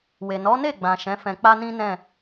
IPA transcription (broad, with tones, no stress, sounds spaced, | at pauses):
w e˨ n ɔ˨˦ n e˦˨ ɡ͡b ã˨ ʃ ɛ̃˨˦ f ɛ̃˧ k͡p a˦ n ĩ˦ n ɛ̃˦˨